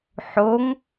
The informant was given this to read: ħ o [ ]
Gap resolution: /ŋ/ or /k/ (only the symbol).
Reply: ŋ